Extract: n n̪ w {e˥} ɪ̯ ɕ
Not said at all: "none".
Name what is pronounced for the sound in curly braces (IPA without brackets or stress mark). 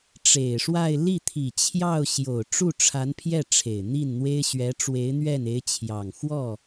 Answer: e˥